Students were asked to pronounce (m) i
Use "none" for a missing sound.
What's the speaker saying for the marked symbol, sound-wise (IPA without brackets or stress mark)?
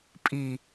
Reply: pʼ